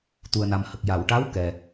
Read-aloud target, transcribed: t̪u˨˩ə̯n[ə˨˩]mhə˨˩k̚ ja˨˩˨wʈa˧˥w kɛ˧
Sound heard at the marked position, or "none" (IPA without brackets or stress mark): a˨˩